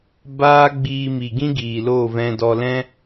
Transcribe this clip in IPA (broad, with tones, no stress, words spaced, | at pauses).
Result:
baː˦ ɡ͡biː˧mi˨ɡĩ˦ ɡiː˨lo˦˨vɛ̃˧dɔ˧ lɛ̃˦